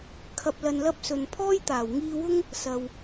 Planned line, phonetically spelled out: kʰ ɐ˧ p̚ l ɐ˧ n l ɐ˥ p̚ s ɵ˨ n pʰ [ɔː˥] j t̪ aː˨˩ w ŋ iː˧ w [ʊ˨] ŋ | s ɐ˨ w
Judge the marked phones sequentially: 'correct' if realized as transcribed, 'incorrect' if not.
correct, incorrect

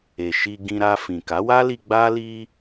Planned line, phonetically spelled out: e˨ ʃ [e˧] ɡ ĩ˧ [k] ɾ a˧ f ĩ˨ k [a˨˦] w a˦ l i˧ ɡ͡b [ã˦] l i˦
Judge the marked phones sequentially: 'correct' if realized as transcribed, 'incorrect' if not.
incorrect, incorrect, correct, incorrect

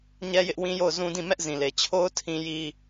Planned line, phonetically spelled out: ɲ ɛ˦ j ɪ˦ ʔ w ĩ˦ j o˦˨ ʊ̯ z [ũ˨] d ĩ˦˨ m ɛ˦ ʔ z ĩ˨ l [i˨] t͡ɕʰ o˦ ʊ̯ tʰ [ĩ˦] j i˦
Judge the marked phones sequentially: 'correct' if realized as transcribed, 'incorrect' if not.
incorrect, incorrect, correct

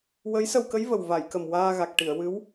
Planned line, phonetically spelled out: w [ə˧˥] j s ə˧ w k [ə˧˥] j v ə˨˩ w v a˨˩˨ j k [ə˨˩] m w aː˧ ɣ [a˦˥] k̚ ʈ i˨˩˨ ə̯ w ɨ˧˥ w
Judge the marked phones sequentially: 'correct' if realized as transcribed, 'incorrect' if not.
correct, correct, correct, incorrect

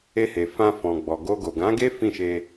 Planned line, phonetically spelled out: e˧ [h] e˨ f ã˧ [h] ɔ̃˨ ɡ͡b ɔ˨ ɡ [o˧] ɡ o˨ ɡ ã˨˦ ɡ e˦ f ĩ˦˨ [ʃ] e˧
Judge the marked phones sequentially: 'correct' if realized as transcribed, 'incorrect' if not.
correct, incorrect, correct, correct

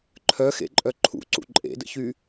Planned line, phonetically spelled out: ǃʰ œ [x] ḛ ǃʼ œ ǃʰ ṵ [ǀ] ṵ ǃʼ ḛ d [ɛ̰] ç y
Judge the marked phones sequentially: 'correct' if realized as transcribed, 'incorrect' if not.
correct, correct, incorrect

